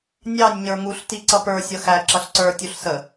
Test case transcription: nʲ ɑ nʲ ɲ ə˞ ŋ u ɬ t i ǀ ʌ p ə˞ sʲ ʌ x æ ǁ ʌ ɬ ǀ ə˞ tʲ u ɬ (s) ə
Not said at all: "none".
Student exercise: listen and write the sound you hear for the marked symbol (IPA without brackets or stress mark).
s